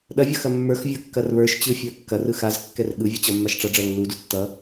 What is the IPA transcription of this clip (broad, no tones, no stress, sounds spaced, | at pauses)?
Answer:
ɗ ɐ vʲ ʌ x ɐ mː ə˞ x vʲ ə˞ kː ɐ r β ə˞ ʃ t͡ɕ ɯ fʲ ə˞ kː ɐ r ɯ x a z kː ɛ r ɠ ɯ vʲ ɯ t͡ɕ ʌ mː a ʃ ʈ͡ʂ ʌ ɖ͡ʐ ɐ lː u d u tː ʌ